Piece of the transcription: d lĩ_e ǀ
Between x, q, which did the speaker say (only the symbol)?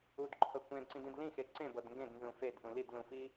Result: x